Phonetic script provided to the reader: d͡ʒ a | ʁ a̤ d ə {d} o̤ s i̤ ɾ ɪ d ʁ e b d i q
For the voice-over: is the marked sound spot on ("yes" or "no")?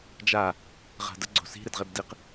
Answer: no